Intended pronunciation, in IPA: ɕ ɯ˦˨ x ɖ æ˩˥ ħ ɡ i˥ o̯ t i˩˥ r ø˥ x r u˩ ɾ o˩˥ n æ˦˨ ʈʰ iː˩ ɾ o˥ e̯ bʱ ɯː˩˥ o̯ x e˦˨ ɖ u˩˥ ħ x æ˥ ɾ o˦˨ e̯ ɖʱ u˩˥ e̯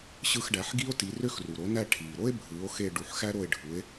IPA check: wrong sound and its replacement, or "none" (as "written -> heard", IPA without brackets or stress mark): none